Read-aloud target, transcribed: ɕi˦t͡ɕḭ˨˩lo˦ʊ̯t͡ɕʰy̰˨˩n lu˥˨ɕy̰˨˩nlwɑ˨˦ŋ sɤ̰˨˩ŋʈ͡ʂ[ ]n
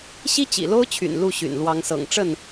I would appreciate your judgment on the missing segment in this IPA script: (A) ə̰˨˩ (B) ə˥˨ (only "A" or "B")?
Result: B